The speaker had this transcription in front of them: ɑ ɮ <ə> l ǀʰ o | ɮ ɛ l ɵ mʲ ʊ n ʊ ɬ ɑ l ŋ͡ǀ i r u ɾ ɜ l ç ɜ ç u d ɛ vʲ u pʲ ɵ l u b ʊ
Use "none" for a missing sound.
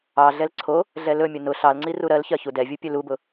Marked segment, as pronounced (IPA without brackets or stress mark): ɛ